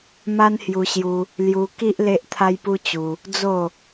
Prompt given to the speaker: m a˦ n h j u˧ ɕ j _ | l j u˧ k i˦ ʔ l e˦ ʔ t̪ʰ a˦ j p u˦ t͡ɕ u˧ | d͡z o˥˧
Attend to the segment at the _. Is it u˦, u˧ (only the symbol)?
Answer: u˧